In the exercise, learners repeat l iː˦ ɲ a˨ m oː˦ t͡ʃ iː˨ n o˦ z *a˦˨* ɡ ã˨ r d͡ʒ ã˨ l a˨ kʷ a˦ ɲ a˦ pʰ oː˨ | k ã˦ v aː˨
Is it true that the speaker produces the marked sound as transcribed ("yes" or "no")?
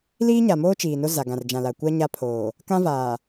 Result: no